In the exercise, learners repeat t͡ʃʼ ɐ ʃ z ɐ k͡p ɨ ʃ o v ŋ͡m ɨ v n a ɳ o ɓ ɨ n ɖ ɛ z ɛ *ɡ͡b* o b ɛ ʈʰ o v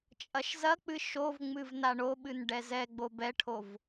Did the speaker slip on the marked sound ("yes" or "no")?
no